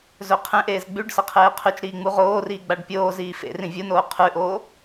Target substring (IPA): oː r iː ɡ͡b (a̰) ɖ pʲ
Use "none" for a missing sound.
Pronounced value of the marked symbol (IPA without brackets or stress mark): a